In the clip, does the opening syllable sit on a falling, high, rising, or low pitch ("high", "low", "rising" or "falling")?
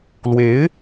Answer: rising